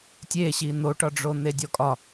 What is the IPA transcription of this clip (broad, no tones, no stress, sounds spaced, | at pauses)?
tʲ e ɕ i n̪ o ʈ ɒ ɖ͡ʐ o n̪ e dʲ ɔ kʼ ɒ